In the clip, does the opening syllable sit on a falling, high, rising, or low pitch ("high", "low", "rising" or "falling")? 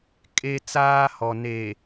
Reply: high